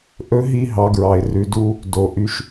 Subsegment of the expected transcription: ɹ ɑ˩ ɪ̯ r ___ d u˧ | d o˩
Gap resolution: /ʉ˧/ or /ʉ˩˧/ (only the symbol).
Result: ʉ˩˧